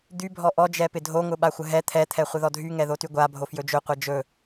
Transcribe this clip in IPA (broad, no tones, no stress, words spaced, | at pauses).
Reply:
d̪y bʱɔʔɔ d͡ʒɛpɪdʱo ŋʊɓaxʷəɦɛ t̪ʰɛ t̪ʰɛχʷɪðɔdʱy ŋɛðotyɡʷa bʱofjɵd͡ʒɵ qʷɛd͡ʒɵ